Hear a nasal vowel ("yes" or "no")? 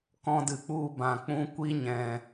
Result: yes